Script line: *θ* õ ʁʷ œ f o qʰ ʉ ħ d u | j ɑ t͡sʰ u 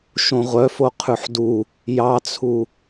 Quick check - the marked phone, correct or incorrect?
incorrect